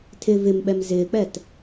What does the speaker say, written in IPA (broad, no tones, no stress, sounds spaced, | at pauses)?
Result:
tʰ ɪ v ɪ m ɓ ɛ m z ɪː k͡p ɛ t